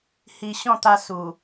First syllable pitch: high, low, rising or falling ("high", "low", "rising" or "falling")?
low